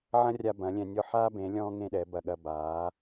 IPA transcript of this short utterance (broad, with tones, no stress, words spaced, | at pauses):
ʕɐ̃˦rʲa˧ bɐ̃˨˦lʲɛ̃˧nʲɔ˦ ħa˧ bẽ˨˦lʲɔ̃ː˦ ŋẽ˦ɗɛ˨˦bɐ˧ ɠɐ˧baː˨˦